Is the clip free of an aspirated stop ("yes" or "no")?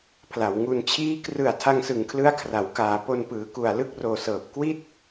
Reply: no